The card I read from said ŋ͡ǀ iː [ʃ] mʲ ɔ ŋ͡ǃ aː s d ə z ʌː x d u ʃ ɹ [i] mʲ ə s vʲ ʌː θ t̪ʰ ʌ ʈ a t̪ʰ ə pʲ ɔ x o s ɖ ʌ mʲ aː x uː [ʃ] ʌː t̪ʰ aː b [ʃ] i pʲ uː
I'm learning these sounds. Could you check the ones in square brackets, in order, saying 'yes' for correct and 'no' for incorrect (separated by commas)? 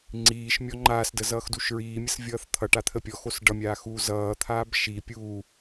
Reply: yes, no, no, yes